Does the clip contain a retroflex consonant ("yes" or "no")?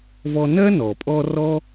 no